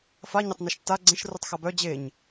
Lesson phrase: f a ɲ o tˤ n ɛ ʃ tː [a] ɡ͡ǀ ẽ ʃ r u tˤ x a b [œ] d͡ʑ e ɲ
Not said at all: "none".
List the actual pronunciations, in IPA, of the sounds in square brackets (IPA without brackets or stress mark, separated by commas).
a, œ